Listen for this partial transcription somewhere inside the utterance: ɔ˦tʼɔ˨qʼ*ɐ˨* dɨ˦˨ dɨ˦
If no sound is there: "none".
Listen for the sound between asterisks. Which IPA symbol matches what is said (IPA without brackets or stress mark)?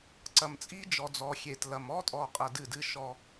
ɐ˨